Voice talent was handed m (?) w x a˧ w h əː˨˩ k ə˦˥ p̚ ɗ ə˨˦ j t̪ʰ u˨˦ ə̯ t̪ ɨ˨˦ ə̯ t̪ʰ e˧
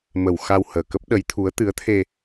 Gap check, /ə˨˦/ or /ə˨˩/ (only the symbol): ə˨˩